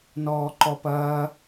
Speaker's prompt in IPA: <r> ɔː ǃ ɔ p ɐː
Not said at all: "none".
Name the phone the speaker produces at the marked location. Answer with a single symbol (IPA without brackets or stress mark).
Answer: n